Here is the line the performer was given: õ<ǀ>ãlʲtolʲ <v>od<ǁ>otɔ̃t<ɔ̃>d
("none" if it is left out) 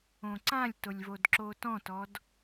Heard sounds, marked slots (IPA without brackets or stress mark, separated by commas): ǀ, v, ǁ, ɔ